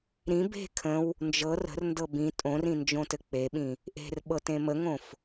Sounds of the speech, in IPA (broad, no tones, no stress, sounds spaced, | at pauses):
ɾ ĩ b e̤ kʰ ə̃ w | n d͡ʒ ɤ r ə̤ r n d ɤ b ĩ tʼ õ r ĩ n d͡ʒ õ t ɘ k͡p e ɓ ĩ | ʔ e̤ r ɓ ɤ t ẽ m ə ŋ õ f